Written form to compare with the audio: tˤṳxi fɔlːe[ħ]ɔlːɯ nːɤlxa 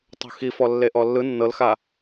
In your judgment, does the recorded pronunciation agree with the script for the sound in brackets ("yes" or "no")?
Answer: no